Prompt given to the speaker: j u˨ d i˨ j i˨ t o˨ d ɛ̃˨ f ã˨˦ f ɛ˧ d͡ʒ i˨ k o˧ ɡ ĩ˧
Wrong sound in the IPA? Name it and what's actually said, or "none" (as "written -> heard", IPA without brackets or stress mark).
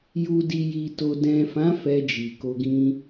none